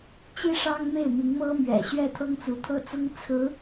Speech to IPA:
t͡ɕ i˥ ʂ ɑ˥ ŋ m e˥˩ ɪ̯ m i˧˥ ŋ m ɤ˥ m ɥ ɛ̰˨˩ ɕ ɥ ɛ˥˩ t̪ʰ ɤ˥ ŋ t͡s u˧˥ t̪ʰ ɤ˥ t͡s ʊ˥ ŋ t͡sʰ ɹ̩˧˥

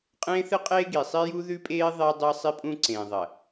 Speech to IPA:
qʼ ẽː˦ θ ɨ˦ qʼ eː˦ ɡ i˨ sˤ i˦ j u˦ ð ʉ˦ pʼ eː˦ ðˤ e˦ dˤ ɨ˦ sˤ i˦ pʼ ũ˦ ǀ ẽː˨ ðˤ ɐ˨

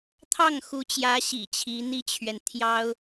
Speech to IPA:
t̪ʰ ɑ˥˩ ŋ x u˧˥ t͡ɕ j ä˧˥ ɕ ḭ˨˩ t͡ɕʰ i˧˥ n̪ i˥ t͡ɕʰ ɥ ɛ˨ n t̪ʰ j ɑ˥ ʊ̯

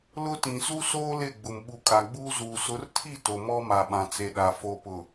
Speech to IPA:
l ʊ˦ t ĩ˨ s u˦ s oː˦ l ɪ˦˨ ɡ͡b ʊ˨ m ɓ u˨ kʼ a˨ ɡ͡b uː˦ z uː˨ s ʊ˨˦ r tʰ i˦˨ t o˨ m ɔ˦ m a˨ ɓ ã˨ t͡s e˨ ɗ a˨ f o˨ p ʊ˨

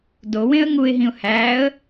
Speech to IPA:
d o w ẽ ə̯ ŋ u ɪ̯ ɦ ĩ ʊ̯ h æ ə̯

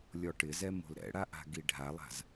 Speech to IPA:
lʲ ɔ ʈ ɪ z ɛ m o̤ l ɾ ɛ̰ ɽ a ʔ a̤ ɡ i ɖʱ a lˠ a̤ z

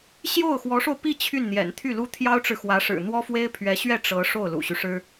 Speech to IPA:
ɕ j o˥˩ ʊ̯ x w ɔ˧˥ ʂ o˧ ʊ̯ p i˥˧ t͡ɕʰ y˥˩ n n̪ j ɛ̰˨˩ n t̪ʰ y˥˩ l u˥ t̪ʰ j ɑ˥ ʊ̯ ʈ͡ʂ ɻ̩˨ x w ä˧˥ ʂ ɻ̩˨˩ n̪ w ɔ˥ f w e˥ ɪ̯ pʰ ɥ ɛ˧˥ ɕ ɥ ɛ˥˩ ʈ͡ʂ ɤ˧˥ ʂ o˥˩ ʊ̯ l ṵ˨˩ ɕ y˦ ʂ ɻ̩˥

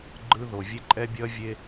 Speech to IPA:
ɡ͡ǃ ɯ˦ ð o˨ vʲ e˦ ǃʼ ɛ˦ bʲ ʌ˦ vʲ e˦

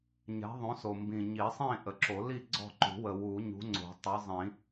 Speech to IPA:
ɲ ɛ̤˨˥ ðˤ õ˨˥ s o˨˩ m b ĩ˨˩ ɲ i˨˩˦ sˤ ĩ˥˨ ʔ ə˨˩ ǁ o˨˩˦ l i˥˨ ɡ͡ǀ ɔ̤˥˨ ǃ ṳ˨˩˦ w ə˨˩ w u˨˩˦ ɲ ṳ˨˥ ŋ͡ǀ o̤˨˩˦ tˤ ɜ˨˥ zˤ ĩ˨˩˦

